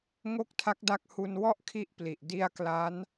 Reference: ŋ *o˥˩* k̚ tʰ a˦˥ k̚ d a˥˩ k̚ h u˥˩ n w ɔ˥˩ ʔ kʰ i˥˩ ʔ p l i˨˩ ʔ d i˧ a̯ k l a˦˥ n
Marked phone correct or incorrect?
correct